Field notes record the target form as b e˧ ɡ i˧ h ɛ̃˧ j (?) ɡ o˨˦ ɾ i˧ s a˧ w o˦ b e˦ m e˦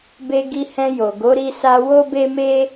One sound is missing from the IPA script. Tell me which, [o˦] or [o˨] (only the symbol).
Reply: o˨